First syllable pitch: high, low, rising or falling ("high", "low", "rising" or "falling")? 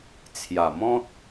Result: low